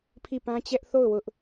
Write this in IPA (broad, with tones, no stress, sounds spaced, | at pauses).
pʰ i˦˨ p ã˦ t͡ɕ ɛ˦ ʔ θ o˦˨ ʊ̯ w ʊ˦ ʔ